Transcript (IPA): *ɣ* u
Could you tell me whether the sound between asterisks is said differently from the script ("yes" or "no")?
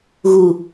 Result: no